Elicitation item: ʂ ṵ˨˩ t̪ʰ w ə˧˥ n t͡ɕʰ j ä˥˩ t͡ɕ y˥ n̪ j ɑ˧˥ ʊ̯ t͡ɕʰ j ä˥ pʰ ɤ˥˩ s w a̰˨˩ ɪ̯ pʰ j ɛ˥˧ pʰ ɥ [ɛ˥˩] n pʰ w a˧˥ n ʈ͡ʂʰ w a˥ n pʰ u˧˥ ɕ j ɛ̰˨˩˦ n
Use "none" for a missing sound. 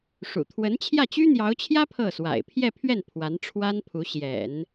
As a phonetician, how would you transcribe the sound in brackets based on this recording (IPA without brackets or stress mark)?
ɛ˥˩